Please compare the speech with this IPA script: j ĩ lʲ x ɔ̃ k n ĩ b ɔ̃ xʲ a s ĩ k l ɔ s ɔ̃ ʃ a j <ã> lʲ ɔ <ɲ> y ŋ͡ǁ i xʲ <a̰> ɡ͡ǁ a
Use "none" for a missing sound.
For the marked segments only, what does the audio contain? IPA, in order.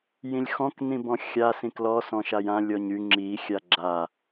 ã, ɲ, a

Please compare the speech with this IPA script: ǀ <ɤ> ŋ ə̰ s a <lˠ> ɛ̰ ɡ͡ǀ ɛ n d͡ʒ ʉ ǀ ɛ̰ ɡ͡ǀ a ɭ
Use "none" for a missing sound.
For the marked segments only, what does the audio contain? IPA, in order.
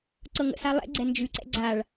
ɤ, lˠ

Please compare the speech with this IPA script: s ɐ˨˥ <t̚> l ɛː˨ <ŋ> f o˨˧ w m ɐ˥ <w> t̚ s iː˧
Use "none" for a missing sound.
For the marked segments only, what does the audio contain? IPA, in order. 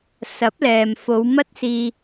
p̚, m, none

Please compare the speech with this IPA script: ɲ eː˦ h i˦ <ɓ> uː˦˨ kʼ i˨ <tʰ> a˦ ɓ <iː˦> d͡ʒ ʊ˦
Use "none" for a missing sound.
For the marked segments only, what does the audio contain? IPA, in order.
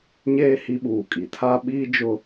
ɓ, tʰ, iː˦

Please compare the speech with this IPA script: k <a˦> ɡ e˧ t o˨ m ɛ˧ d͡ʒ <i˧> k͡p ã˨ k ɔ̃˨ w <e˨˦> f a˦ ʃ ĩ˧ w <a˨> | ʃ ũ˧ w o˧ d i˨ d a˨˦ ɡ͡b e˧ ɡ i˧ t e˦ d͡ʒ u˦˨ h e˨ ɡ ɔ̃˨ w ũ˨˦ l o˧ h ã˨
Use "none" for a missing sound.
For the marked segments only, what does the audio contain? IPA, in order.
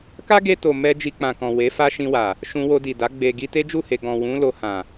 a˦, i˧, e˨˦, a˨

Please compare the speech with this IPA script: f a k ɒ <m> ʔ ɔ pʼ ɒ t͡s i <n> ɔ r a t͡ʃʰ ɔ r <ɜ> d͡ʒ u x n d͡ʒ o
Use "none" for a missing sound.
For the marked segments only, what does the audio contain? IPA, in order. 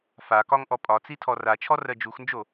ŋ, tʰ, ɜ

